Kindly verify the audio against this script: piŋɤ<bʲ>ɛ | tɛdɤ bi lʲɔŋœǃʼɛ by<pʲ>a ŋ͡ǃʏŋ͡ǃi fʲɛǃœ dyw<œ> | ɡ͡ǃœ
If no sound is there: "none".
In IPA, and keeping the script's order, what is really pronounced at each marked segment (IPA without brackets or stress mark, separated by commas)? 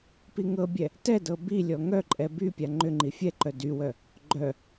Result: bʲ, pʲ, œ